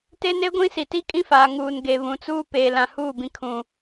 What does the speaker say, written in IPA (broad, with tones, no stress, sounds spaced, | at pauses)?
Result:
t e˦ n e˦ ɡʷ ĩ˦ s i˨ t i˦ kʼ ĩ˦ f aː˨ ŋ uː˨ n ɡ e˨ β ũ˨ t͡s uː˦ p eː˨ l ã˨ h uː˦˨ b ĩ˨ kʰ ũ˨